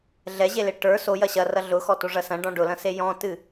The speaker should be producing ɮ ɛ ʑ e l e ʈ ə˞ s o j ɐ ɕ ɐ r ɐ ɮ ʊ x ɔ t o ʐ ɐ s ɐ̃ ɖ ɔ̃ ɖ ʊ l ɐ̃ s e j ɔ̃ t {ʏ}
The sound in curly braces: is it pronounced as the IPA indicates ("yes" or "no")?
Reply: no